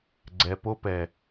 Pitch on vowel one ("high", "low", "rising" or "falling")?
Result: low